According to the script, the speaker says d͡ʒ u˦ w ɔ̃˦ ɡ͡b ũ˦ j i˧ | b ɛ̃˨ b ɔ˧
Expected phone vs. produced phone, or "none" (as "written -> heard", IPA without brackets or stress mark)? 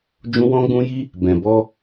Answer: u˦ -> ũ˦